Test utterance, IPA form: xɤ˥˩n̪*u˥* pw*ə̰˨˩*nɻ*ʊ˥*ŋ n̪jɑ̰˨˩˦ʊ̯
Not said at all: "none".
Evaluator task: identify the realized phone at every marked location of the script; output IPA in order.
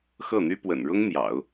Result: y˥, ə̰˨˩, ʊ˥

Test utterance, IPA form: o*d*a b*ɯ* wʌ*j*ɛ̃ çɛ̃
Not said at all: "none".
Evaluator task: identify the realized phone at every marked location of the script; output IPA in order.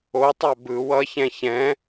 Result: tˤ, ɯ, ç

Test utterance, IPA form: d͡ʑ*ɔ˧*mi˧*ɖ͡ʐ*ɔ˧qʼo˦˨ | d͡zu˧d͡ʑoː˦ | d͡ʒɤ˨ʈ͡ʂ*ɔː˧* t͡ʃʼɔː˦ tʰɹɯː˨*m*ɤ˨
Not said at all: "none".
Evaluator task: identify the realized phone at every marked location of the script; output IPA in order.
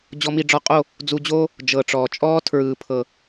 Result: ɔ˧, ɖ͡ʐ, ɔː˨, pʰ

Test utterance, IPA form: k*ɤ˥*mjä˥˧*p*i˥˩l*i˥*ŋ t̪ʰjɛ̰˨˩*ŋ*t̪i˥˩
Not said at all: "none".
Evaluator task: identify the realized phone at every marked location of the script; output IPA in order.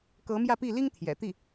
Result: ɤ˧˥, p, i˥, none

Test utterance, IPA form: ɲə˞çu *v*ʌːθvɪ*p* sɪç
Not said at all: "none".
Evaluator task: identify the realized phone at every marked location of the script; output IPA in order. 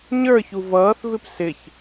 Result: v, p

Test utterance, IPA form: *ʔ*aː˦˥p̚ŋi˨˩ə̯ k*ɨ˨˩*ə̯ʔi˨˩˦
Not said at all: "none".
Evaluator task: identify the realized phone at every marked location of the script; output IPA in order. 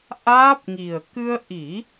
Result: ʔ, ɨ˧

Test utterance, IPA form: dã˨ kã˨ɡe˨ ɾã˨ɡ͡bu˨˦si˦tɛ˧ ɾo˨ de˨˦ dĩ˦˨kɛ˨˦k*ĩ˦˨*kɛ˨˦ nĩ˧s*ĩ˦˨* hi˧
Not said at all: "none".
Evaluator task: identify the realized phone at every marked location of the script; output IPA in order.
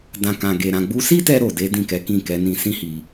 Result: ĩ˦˨, ĩ˦

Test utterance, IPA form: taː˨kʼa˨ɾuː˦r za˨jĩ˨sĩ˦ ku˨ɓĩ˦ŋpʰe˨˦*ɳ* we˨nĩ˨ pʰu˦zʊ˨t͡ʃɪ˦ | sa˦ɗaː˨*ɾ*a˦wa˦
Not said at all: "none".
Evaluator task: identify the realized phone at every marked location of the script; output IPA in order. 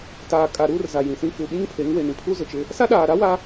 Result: ŋ, ɾ

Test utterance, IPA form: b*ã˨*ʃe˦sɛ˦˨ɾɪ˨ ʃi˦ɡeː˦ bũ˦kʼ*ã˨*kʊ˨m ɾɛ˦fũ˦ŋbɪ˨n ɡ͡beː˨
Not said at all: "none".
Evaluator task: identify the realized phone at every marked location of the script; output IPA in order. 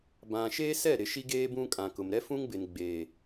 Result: ã˨, ã˨

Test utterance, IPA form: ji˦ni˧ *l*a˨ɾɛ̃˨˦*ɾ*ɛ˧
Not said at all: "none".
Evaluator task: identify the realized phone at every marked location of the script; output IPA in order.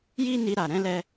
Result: ɾ, l

